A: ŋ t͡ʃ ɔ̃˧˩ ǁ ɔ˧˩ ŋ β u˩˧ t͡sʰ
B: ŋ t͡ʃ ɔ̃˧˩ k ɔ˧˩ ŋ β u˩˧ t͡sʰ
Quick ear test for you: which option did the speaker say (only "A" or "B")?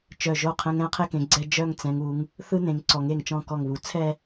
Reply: B